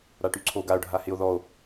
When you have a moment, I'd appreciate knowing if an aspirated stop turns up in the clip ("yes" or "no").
yes